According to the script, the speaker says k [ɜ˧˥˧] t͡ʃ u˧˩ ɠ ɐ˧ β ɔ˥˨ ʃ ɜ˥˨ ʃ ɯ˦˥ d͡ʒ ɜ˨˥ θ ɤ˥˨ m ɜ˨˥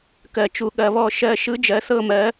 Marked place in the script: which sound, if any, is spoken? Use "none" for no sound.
ɜ˧˩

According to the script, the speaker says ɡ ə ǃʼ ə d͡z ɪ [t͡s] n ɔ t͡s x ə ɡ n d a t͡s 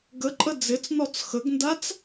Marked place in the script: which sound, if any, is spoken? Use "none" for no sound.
t͡s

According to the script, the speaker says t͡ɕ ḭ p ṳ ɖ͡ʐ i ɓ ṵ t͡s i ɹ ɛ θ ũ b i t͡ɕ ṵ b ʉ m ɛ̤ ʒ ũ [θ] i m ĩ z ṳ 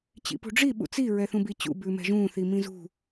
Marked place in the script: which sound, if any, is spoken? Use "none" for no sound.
θ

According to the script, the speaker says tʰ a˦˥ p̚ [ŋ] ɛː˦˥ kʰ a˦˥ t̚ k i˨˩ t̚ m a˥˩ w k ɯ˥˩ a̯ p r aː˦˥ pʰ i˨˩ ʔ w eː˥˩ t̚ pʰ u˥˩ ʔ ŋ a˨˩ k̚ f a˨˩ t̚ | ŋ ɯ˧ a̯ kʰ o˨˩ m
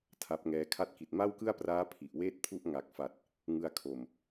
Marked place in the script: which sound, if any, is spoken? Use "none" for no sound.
ŋ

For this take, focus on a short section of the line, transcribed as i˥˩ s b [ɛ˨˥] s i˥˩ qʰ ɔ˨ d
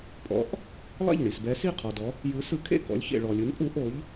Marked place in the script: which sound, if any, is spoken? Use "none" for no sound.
ɛ˨˥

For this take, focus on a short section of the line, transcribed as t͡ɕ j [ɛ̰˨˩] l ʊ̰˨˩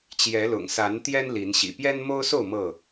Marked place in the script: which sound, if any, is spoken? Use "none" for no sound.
ɛ˨˦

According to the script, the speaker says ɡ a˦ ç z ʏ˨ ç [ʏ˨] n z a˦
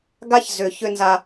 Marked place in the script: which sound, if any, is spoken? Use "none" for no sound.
ʏ˦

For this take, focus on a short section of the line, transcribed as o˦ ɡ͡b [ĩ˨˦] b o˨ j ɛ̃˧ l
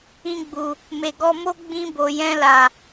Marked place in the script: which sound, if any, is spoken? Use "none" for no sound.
ĩ˧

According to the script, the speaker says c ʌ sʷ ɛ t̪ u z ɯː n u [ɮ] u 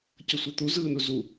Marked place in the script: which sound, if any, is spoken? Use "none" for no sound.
z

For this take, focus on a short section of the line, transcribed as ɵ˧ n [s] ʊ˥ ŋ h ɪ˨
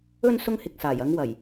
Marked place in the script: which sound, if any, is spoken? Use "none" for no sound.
s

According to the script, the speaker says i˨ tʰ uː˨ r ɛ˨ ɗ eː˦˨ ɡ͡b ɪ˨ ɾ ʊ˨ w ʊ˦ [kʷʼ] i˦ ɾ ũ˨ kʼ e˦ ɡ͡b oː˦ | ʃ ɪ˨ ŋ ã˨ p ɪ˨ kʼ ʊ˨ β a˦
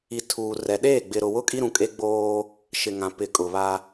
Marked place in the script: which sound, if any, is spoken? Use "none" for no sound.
kʼ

